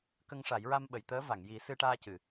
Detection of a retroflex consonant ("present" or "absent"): present